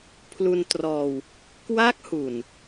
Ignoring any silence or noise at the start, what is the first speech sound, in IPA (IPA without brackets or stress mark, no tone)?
pʰ